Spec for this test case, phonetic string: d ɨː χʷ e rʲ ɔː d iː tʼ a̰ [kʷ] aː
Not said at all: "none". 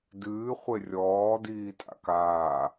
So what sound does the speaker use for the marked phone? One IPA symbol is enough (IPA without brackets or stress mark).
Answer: k